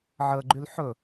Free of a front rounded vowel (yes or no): no